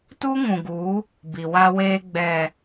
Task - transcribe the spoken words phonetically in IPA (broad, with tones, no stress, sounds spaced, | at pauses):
t u˦ ŋ ũ˨ ɡ u˨˦ | b i˨ w a˦ w eː˦ ɡ͡b ɛ˨